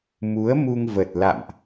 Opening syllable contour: rising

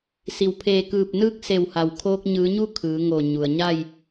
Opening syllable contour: low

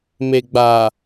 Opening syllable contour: low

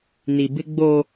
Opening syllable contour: low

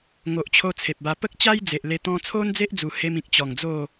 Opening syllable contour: low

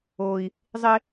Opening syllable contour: high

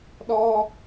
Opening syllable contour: high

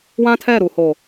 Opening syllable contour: high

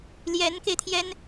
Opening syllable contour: rising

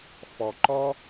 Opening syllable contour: low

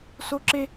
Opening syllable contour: high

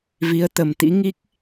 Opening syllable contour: rising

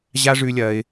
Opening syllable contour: high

